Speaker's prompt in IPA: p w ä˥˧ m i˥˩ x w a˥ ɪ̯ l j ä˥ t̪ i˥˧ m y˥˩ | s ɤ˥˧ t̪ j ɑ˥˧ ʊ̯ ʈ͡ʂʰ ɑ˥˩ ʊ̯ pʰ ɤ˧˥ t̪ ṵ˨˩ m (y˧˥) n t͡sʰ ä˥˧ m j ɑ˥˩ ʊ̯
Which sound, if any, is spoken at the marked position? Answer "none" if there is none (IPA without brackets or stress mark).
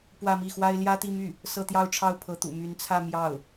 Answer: y˧˥